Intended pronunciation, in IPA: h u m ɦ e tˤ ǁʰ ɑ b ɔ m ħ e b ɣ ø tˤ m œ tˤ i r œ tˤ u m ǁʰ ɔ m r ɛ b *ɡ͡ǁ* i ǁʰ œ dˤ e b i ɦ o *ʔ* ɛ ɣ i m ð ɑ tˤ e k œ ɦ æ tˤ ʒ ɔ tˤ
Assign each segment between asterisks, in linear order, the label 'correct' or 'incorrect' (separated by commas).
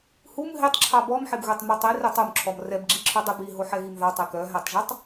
correct, incorrect